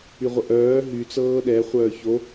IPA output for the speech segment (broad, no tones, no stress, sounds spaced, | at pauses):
y ʁʷ ə ʔ œː ɦ y t͡s ɤː ɗ ɛ χʷ œː ç o